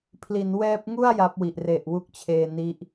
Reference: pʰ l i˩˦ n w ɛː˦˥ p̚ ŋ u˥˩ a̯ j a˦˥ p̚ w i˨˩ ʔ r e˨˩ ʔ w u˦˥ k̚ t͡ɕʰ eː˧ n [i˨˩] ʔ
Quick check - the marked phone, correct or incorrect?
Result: incorrect